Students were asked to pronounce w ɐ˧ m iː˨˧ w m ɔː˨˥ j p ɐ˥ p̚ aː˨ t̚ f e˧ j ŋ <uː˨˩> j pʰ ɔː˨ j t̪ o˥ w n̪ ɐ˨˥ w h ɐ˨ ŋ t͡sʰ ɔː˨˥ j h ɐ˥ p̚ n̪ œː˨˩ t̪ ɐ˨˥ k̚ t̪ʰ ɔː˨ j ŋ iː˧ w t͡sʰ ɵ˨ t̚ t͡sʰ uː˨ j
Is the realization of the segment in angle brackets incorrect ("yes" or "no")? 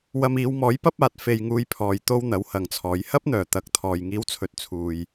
yes